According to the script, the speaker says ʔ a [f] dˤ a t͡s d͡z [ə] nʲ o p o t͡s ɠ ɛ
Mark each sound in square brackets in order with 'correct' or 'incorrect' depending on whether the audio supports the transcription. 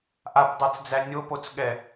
incorrect: p, incorrect: æ

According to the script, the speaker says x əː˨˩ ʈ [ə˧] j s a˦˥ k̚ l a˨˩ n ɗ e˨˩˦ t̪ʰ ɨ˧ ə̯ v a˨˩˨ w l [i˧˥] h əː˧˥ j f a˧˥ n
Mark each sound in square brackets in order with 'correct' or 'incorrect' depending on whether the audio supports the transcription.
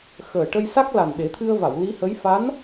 correct, correct

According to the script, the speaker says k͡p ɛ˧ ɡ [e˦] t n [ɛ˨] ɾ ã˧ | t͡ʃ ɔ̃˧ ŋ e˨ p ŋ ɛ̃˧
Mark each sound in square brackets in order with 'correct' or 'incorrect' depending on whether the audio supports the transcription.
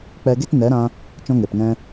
correct, incorrect: ɛ˨˦

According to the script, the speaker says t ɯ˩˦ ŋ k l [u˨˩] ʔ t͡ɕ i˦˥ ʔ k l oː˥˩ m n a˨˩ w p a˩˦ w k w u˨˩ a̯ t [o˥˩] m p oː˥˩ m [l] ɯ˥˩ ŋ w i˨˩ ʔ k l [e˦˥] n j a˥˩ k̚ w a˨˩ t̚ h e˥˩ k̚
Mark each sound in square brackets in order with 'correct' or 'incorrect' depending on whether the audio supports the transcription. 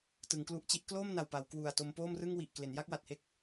incorrect: u˦˥, incorrect: o˧, incorrect: r, incorrect: e˩˦

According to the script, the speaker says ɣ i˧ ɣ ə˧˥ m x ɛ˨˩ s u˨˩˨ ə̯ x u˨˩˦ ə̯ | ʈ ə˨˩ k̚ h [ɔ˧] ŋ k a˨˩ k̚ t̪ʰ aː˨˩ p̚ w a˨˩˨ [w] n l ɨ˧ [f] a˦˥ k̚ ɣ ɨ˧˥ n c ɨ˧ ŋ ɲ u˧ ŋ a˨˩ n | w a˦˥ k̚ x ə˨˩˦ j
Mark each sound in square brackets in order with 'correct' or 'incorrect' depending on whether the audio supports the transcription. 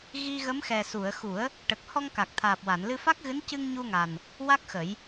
correct, incorrect: none, correct

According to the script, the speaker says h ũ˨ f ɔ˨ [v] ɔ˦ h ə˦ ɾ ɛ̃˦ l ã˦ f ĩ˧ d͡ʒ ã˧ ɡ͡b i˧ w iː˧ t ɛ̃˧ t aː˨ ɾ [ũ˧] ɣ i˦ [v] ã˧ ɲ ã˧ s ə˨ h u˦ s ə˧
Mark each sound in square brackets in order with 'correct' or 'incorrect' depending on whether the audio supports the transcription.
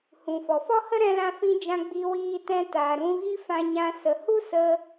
incorrect: f, correct, incorrect: f

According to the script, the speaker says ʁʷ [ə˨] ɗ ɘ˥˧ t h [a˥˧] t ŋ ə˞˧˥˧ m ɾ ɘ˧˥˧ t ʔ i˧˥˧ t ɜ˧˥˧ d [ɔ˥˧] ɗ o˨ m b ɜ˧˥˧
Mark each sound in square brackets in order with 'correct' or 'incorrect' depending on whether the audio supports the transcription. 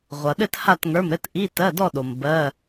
incorrect: ʌ˨, correct, correct

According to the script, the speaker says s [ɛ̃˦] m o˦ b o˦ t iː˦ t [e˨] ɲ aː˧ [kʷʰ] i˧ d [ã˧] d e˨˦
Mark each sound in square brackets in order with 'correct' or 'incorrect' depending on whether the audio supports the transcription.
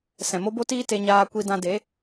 incorrect: ɛ̃˨, incorrect: e˧, incorrect: kʷ, correct

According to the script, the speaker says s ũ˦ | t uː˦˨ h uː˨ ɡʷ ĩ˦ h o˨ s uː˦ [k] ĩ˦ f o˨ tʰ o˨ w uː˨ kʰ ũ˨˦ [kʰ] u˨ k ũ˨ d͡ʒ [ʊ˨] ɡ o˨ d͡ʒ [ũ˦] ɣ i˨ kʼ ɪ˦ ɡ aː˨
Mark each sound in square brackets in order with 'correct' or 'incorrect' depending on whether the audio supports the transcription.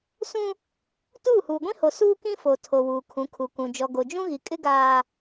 correct, correct, incorrect: ɔ˨, correct

